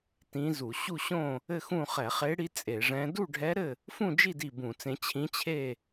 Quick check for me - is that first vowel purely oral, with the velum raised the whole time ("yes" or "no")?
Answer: no